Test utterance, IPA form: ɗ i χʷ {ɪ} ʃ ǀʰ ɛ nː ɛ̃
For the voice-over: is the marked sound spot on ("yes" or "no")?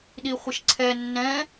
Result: yes